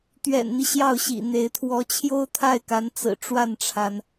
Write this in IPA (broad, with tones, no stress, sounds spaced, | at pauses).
t̪ ɥ ɛ̰˨˩ n n̪ i˦ ɕ j ɑ˥˩ ʊ̯ ɕ ḭ˨˩ n̪ e˧˥ ɪ̯ t̪ʰ w ɔ˧˥ t͡ɕʰ j o˥ ʊ̯ t̪ʰ a˥˩ ɪ̯ k a˧˥ n t͡s ɹ̩˨˩ ʈ͡ʂ w a˥˩ n ʈ͡ʂʰ a˩ n